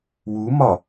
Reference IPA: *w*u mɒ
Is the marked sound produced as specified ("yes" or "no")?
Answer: yes